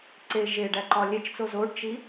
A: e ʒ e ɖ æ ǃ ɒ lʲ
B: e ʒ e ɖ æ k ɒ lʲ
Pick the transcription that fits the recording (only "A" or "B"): A